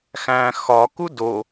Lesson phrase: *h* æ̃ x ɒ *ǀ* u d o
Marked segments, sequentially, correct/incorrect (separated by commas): incorrect, incorrect